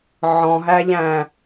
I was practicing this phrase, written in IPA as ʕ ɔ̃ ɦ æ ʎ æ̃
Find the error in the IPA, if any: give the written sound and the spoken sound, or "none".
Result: none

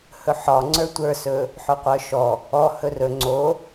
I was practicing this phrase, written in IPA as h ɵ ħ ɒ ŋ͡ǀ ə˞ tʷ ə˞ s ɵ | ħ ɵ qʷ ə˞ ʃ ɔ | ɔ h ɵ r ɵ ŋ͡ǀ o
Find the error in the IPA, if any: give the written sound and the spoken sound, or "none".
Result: none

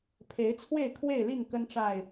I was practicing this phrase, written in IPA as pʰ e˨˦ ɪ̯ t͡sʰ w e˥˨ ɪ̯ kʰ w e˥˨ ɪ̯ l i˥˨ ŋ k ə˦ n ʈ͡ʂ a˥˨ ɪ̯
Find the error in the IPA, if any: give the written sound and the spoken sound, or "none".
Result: none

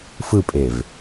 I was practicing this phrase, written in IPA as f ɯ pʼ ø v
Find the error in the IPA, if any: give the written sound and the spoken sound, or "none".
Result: ø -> e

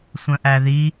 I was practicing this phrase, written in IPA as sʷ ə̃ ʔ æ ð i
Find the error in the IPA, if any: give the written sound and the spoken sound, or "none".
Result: none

